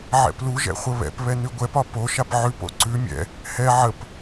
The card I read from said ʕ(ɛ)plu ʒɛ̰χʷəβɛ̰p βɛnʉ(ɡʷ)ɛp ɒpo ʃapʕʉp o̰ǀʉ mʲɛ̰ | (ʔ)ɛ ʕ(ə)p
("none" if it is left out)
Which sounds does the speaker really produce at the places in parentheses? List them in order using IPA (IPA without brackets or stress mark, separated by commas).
ɛ̰, ɡʷ, h, ə